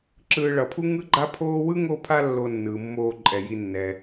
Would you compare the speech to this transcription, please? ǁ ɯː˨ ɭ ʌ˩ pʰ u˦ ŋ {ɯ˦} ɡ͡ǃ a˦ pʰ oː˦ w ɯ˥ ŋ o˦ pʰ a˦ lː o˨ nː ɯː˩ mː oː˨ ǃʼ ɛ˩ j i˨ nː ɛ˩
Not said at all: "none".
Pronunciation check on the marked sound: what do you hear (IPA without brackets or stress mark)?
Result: ɯ˦